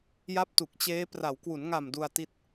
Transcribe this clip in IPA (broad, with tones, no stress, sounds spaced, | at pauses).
j a˦˥ p̚ t u˨˩ k̚ t͡ɕ eː˦˥ p r a˩˦ w k w u˩˦ n ŋ a˨˩ m d u˧ a̯ t i˦˥ t̚